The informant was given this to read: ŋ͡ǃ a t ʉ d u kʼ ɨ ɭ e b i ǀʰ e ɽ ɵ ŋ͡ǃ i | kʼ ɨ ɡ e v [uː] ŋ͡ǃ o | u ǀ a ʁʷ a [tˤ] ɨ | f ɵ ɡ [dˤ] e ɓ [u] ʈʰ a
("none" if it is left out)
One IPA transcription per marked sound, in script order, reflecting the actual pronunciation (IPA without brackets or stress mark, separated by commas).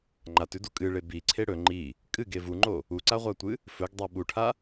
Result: u, tʷ, dˤ, u